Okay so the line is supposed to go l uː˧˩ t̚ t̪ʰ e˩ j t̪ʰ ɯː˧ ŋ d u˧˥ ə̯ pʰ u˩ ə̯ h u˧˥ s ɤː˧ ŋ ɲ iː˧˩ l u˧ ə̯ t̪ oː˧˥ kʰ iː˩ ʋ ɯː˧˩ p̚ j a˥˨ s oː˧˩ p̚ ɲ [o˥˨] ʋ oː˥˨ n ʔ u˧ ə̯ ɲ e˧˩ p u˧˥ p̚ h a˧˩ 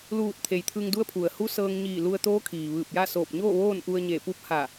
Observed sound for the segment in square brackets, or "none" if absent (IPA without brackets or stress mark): oː˥˨